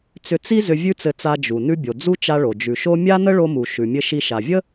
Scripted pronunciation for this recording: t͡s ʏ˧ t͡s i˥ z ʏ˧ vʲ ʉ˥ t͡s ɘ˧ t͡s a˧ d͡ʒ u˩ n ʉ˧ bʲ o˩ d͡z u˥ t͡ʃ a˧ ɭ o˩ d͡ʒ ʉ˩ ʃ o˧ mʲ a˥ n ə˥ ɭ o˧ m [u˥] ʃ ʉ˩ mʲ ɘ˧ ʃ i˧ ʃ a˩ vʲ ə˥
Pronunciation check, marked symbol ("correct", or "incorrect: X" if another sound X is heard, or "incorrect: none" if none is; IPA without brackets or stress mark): incorrect: u˩